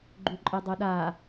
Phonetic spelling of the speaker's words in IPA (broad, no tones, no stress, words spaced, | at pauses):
ɡ͡ǃuǃʼɨdˤuɗa